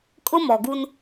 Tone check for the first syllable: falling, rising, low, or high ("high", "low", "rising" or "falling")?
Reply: high